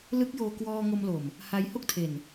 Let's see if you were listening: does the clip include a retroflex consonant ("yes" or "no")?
no